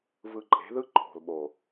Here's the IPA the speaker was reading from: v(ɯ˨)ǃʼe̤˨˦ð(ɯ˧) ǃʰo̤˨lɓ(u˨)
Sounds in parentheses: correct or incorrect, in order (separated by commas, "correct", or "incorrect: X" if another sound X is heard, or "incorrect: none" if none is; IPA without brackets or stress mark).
incorrect: ɯ˧, incorrect: ɯ˦, incorrect: o˨